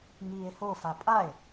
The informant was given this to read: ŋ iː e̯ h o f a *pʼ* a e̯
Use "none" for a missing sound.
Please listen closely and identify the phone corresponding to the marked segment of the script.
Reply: pʼ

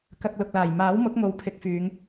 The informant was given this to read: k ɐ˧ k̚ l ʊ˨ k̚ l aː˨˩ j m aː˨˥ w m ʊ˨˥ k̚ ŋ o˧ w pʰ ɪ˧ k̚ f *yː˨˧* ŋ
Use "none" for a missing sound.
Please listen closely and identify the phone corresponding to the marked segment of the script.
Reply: yː˨˧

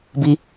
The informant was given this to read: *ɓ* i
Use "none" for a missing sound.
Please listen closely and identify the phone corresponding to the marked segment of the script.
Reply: b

